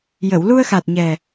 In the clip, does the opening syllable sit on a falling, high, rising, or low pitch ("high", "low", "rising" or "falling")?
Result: low